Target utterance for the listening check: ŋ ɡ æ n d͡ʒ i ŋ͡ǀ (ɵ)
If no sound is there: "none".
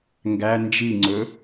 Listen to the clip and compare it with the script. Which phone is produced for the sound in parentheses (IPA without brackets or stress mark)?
ɵ